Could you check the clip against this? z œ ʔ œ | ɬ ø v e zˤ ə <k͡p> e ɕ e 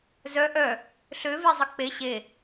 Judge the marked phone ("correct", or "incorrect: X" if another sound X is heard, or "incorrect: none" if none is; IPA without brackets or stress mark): correct